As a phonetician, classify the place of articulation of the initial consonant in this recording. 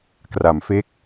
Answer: velar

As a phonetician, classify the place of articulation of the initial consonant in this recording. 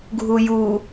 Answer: velar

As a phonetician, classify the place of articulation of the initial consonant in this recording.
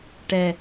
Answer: retroflex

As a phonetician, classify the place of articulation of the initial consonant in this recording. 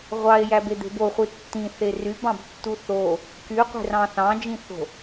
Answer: uvular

